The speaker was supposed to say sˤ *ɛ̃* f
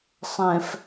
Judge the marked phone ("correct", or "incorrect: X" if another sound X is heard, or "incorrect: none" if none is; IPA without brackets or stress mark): correct